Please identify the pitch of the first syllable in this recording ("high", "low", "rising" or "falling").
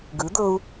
rising